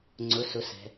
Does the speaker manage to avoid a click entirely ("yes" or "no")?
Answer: no